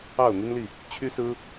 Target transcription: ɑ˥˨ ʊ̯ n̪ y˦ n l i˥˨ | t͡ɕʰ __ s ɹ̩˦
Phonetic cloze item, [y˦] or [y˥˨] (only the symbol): y˦